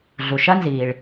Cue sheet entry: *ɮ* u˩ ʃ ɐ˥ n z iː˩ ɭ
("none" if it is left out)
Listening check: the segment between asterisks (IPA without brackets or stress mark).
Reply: ɮ